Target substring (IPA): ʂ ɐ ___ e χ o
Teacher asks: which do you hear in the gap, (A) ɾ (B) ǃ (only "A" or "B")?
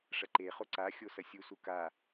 B